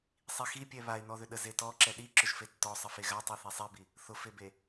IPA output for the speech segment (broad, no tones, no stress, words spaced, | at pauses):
sˤixipʲɛ βaɪ̯nɔðʏ ɗəzetɔ ǁɛɗi ǁʊʒfetːɔ sˤəfeɣa tˤiθesˤibi | θʊfebe